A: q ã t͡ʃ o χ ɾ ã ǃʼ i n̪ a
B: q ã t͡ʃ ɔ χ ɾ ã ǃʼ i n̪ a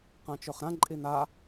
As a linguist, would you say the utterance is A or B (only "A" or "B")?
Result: A